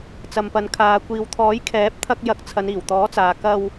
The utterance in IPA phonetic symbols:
t͡s ɐ˨ m p ɐ˨ n kʰ aː˨ kʷ iː˨ w t̪ʰ ɔː˨˥ j kʰ ɛː˨˥ p̚ t̪ʰ ɐ˧ k̚ j ɐ˨˥ k̚ t͡sʰ ɐ˨˧ n iː˨˩ w t̪ ɔː˨˥ t͡s aː˨ k ɐ˧ w

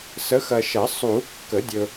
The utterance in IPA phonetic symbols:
s ə˨˦ x ɐ˨ ʃ ɐ˨˩˦ sˤ u˨˩˦ kː ə˨˩˦ dʲ ɵ˨

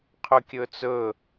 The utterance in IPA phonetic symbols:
qʰ ɵ kʲ ɵ t͡s ɵ

